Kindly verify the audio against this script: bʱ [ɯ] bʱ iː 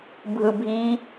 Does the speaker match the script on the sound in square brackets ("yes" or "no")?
yes